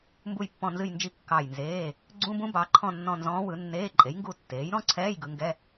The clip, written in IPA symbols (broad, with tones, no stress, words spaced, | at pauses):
mbu˦˨jpːɔ̃˦˨ nzɨ˦˨jnd͡ʒi˦˨ kːɑ˦˨jnzeː˧˥˧ | ɡ͡ǀũ˧˥˧bũ˧˥ bɑ˩˥ǃʰɔ̃˦˨nːɔ̃˦˨ nzɔ̃ː˧˥wɯ˩˥nːeː˧˥˧ ǃʼe˩˥jŋɡu˦˨ tːeː˩˥jɾɔ̃˧˥˧ǀʰɛː˧˥˧j ɡɯ˩˥ŋɡɛ˧˥˧